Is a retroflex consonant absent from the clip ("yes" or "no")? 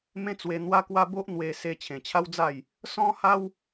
yes